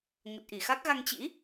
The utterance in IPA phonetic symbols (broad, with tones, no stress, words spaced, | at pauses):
ŋə˨˩t̚ʔi˧˩xa˦˥k̚ɣa˧ŋ t͡ɕḭ˧˥